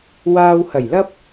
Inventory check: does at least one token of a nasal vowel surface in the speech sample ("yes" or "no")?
no